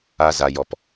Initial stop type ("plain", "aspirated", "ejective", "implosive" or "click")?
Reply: plain